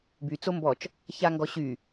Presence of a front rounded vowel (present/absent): present